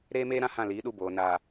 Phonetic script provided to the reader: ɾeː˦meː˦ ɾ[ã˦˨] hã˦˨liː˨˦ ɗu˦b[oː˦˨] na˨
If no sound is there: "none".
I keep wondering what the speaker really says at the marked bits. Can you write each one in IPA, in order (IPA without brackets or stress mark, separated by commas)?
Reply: ã˦˨, oː˨